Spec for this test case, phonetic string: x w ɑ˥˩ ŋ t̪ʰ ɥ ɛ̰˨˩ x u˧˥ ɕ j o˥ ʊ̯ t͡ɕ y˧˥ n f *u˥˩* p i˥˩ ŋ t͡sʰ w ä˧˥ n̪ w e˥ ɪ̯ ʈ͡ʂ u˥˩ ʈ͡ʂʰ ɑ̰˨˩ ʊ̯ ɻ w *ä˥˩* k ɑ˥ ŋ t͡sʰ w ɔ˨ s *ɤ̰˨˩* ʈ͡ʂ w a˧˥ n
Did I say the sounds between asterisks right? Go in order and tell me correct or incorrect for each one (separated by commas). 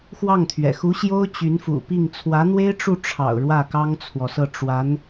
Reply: incorrect, correct, incorrect